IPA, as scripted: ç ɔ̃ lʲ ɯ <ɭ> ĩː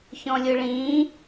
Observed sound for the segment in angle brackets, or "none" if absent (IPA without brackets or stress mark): ɭ